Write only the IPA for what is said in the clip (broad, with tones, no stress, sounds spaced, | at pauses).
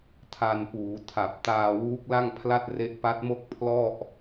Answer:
tʰ a˧ n p uː˩˦ tʰ a˨˩ p̚ t aː˧ w uː˦˥ k̚ l a˥˩ ŋ pʰ l a˥˩ t̚ r e˦˥ ʔ p a˦˥ t̚ m o˥˩ k̚ pʰ l ɔ˥˩ ʔ